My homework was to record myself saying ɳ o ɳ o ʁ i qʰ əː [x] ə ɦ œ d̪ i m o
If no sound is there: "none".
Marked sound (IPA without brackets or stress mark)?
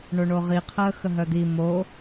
x